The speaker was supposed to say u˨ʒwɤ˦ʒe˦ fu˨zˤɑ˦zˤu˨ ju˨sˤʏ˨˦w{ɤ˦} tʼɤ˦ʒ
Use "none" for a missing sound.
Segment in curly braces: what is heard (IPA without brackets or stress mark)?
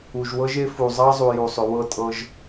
ɤ˦